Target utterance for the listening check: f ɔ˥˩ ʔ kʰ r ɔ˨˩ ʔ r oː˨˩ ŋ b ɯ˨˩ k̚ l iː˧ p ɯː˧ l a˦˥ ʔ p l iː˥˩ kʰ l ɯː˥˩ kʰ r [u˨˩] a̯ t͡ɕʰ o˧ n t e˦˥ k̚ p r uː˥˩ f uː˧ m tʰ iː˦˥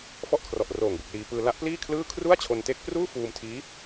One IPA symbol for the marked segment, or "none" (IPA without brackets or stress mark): u˥˩